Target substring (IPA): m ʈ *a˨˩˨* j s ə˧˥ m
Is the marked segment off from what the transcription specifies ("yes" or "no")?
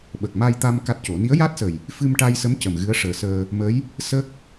yes